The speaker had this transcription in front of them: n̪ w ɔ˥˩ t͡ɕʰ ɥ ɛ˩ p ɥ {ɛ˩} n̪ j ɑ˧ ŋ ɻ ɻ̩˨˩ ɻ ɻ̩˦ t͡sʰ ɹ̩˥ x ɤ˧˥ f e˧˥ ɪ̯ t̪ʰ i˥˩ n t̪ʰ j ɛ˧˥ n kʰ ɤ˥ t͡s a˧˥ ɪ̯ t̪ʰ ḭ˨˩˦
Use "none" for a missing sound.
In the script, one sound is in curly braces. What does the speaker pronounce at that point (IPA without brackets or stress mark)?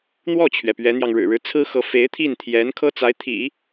ɛ˧˥